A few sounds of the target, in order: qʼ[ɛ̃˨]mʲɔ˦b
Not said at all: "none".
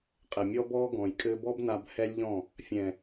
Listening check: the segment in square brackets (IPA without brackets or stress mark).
ɛ˨